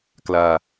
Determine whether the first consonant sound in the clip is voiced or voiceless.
voiceless